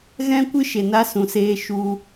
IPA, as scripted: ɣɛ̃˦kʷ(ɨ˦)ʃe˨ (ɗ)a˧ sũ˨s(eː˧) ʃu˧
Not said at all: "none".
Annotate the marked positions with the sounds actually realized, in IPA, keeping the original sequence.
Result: ɨ˦, n, eː˧

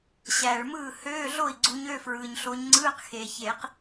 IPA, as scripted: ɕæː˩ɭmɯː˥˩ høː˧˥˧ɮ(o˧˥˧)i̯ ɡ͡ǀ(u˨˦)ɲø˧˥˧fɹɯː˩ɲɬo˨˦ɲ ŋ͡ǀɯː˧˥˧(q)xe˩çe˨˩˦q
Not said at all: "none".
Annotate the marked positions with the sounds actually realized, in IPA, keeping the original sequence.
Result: o˥˩, u˨˦, q

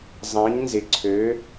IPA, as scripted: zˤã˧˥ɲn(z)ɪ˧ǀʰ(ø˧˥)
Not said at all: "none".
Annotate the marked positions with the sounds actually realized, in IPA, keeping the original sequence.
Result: z, ø˧˥

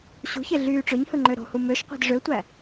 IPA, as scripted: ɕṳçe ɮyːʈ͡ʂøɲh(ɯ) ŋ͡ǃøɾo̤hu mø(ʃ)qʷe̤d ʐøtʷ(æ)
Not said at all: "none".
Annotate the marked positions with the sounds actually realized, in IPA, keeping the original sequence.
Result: ɯ, ʃ, æ

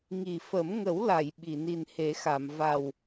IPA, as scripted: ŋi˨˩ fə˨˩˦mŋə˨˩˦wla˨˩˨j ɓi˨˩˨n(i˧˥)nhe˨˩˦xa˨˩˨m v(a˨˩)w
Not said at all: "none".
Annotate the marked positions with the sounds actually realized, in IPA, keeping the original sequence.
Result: i˨˩, a˨˩

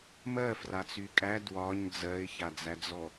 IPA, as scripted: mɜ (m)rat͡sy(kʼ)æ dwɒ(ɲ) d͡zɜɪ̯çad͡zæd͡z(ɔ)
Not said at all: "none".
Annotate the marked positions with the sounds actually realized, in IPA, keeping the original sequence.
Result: f, kʼ, ɲ, ɔ

